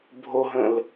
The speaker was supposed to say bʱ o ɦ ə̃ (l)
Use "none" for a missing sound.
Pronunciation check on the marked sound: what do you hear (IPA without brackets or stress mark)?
l